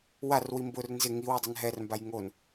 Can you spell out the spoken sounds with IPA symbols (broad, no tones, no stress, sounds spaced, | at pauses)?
w a r w i m b ʊ r n z ɪ ŋ i w i dˤ ɛ n ɦ ɛ r m b a j ŋ o n